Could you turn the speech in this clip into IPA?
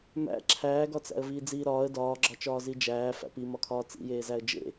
m æ̰ ǁʰ æː ɡ ɒ t͡s æ̰ ə̯ v iː d͡z iː ɾ ɒː ə̯ d ɒː ɡ͡ǁ ɒ t͡ʃ ɒː z i d͡ʒ æː f æ̰ p i m ɒ kʰ ɒː t͡s ḭ j eː z æ ə̯ d͡ʒ ḛ

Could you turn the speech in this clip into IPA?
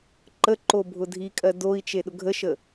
ǃ ə ǃ o bʱ ʊ dʱ i kʼ ɜ d o i̯ t͡ʃ e ɗ ʊ ɡʱ ə ʃ ə

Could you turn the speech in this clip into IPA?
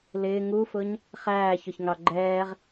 l ɪː ŋ u f ʊ ɲ | χ æː ç ʊ ç ŋ ɑ ɡ͡ǃ ɛː ʁ

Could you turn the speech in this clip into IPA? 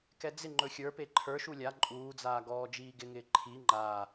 k ɛ d͡z ɪ ŋ͡ǃ ɵ xʲ ə˞ p e ǃʰ ə˞ ʃ u lʲ a ǃʼ uː d͡z aː ɡ ɔː d͡ʒ iː ɡ ɪ ŋ ɪː ǃʰ i ŋ͡ǃ a

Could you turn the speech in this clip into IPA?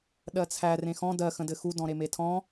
ɗ ɜ t͡sʰ æ r ẽ x ɔ̃ d ɜ x ə̃ d ɘ x u d ɔ̃ ɾ e m e tʰ ɔ̃

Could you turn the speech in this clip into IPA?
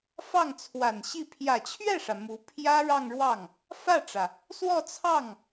f ɑ˥˩ ŋ t͡sʰ w a˨˩ n ɕ i˥˩ pʰ j ä˨˩ t͡ɕʰ ɥ ɛ˥˩ ʂ ä˩ m u˧˥ pʰ j ä˥ ɻ ɑ˥˧ ŋ ɻ w ɑ˥˩ ŋ | f ä˥˩ ʈ͡ʂ ä˩ | s w ɔ˥˧ t͡sʰ ɑ˥˩ ŋ

